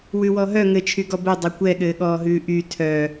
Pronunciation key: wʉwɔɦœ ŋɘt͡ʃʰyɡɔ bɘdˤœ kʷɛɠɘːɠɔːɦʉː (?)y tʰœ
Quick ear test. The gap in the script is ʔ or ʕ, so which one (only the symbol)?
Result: ʔ